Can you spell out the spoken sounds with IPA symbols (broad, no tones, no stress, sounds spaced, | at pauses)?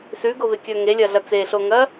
s ʉ ɡ o v e kʲ ɵ ŋ e lʲ ɐ ɮ ɐ t͡s e ɬ o ŋ ɐ